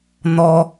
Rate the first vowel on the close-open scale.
mid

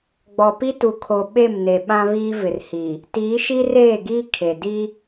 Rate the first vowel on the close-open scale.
mid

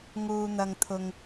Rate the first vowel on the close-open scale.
close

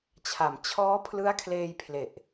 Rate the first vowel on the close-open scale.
open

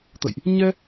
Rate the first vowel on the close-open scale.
mid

